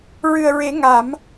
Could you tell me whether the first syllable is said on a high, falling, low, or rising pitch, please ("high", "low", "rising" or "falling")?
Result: low